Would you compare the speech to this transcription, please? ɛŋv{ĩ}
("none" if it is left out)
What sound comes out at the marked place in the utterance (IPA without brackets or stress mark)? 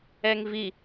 i